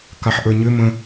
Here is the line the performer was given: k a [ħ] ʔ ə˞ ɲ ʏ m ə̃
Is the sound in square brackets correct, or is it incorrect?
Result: correct